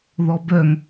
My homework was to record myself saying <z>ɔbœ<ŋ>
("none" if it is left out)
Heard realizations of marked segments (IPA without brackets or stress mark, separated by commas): ð, ŋ